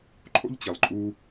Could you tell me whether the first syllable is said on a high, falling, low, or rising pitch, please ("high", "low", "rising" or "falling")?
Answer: high